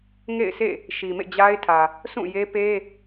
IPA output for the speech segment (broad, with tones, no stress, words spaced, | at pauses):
ŋḛ˦˨ɪ̯sḛ˦˨ | ʃi˨mḛ˦˨ d͡ʑa˦ɪ̯tʰä˨ | sʰũ˦˨je˦pe˦